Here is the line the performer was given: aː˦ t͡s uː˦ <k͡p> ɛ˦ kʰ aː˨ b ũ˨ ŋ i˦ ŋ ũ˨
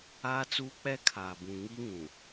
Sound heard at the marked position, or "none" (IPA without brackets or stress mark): k͡p